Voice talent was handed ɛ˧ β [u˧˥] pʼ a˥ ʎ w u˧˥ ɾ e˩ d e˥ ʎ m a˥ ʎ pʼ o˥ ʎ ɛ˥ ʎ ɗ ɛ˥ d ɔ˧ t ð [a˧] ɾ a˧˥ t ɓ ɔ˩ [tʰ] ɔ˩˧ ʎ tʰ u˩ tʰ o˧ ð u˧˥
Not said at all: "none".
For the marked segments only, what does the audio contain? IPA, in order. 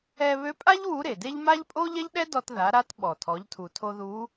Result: ø˧˥, a˩˧, tʰ

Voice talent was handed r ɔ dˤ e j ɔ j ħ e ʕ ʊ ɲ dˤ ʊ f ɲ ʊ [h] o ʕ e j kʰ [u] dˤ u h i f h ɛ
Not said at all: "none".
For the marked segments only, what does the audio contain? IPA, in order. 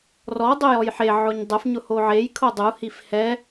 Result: h, o

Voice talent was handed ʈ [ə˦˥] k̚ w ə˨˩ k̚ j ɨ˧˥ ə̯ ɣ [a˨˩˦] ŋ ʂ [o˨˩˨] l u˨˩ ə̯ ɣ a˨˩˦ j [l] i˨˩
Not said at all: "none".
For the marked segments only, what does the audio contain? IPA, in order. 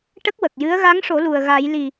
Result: ə˦˥, a˧˥, o˨˩˦, l

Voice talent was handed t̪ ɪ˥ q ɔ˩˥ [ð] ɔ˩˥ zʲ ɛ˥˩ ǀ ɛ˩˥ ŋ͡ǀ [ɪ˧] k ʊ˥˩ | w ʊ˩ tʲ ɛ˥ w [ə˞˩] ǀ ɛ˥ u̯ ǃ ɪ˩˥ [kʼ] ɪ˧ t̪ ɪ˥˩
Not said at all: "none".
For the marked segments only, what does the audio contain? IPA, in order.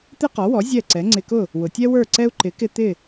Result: w, ɪ˧, ə˞˥˩, k

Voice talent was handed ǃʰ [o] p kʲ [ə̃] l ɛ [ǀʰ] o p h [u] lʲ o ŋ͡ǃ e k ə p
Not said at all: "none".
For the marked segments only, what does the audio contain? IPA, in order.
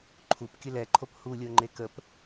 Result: u, ə, ǃʰ, u

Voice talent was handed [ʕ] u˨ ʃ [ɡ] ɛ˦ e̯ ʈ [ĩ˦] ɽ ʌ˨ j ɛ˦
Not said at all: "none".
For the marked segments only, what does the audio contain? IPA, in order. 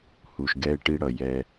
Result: h, ɡ, i˦

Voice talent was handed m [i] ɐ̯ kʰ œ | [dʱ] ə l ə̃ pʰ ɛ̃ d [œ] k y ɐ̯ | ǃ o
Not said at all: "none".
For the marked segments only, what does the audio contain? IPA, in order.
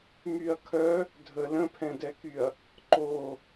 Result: y, dʱ, ɛ

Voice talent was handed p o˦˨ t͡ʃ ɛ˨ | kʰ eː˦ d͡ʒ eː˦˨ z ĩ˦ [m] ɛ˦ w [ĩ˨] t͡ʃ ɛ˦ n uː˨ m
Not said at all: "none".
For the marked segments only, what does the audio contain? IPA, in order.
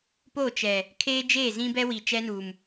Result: b, i˨

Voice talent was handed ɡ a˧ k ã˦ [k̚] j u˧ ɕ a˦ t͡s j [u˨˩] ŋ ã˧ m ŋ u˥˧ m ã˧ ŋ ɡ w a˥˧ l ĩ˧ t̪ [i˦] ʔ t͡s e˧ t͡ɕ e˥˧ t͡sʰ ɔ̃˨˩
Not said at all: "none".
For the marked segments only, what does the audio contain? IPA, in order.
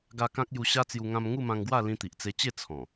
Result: k̚, u˧, i˨

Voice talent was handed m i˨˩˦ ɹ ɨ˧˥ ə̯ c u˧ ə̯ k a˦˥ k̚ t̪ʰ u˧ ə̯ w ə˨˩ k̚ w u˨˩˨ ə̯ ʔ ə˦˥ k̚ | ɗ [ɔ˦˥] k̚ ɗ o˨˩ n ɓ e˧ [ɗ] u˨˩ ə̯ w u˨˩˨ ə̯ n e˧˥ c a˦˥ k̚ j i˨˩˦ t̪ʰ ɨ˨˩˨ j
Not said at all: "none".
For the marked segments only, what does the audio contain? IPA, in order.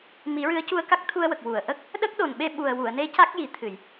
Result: ə˦˥, ɓ

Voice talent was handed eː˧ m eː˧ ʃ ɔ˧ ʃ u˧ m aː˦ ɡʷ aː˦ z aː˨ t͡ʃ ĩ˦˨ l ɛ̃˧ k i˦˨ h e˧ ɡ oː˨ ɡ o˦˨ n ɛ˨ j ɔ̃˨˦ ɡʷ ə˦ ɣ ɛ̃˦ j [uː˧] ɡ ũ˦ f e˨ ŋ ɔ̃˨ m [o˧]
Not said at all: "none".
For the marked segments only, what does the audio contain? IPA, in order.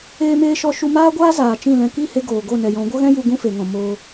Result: u˧, oː˧

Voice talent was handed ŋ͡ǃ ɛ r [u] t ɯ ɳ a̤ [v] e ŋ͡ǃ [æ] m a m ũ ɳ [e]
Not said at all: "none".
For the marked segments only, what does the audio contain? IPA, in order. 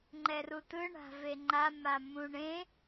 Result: u, v, a, ẽ

